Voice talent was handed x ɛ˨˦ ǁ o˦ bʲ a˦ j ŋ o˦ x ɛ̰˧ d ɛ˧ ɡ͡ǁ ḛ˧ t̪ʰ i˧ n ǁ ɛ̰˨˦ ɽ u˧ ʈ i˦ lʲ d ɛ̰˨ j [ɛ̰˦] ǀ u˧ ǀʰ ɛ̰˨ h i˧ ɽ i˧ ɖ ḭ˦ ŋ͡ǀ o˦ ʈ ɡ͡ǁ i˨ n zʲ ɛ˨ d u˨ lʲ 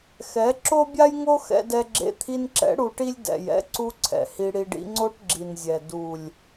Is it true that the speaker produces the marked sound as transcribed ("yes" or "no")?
yes